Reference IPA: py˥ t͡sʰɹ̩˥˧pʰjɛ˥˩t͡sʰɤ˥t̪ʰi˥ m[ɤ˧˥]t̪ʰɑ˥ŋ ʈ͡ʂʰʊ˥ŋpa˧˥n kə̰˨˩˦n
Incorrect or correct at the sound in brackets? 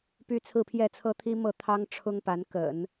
incorrect: ɤ˥˩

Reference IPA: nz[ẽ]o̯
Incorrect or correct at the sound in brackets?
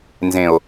correct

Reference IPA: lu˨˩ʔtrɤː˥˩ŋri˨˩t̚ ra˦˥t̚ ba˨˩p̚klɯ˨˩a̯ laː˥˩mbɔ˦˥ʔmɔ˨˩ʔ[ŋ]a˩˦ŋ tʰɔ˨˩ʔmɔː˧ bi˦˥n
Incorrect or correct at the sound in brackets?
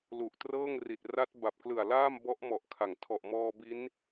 incorrect: kʰ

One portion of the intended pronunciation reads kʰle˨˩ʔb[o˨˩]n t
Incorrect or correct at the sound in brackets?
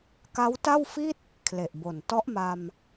correct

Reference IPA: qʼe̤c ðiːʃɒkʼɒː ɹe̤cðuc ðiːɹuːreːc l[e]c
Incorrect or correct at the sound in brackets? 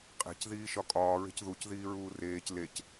correct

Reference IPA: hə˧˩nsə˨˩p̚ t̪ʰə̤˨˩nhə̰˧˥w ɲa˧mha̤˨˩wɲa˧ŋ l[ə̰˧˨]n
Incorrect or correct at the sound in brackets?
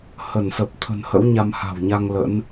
incorrect: ə̰˧˥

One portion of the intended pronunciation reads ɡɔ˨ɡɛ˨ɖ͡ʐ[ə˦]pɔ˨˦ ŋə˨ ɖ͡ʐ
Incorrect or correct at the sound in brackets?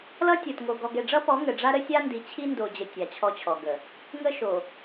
incorrect: ʌ˦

